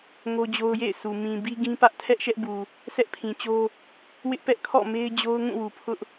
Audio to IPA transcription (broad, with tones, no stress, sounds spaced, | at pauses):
ŋ o˦ d͡ʑ o˦ ʊ̯ j ḛ˦˨ ɪ̯ s u˨ m ĩ˨ b i˦ ɡ ĩ˦ p ä˦ ʔ tʰ ɛ˦ ʔ ʃ ɛ˦ ʔ b u˨ | sʰ ɛ˦ ʔ pʰ ĩ˨ t͡ɕ o˦ | w ɪ˦ ʔ p ɛ˦ ʔ kʰ ɔ̰˦˨ m e˦ ɪ̯ d͡ʑ o˦ ʊ̯ ŋ ũ˦˨ w u˨ pʰ ʊ˦ ʔ